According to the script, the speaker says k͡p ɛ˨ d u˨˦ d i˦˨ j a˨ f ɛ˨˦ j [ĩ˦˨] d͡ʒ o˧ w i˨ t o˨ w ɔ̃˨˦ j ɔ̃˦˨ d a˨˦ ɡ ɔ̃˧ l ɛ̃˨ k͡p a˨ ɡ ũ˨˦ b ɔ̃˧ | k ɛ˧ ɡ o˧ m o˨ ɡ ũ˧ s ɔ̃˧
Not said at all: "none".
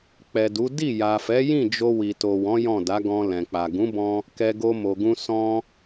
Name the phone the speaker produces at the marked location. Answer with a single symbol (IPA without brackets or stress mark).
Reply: ĩ˦˨